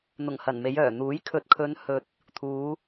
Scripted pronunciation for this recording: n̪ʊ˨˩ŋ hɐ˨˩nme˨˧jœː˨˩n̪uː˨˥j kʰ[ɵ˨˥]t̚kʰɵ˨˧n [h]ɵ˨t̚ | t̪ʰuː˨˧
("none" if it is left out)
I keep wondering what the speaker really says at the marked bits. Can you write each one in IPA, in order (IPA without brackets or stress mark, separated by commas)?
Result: ɵ˨˥, h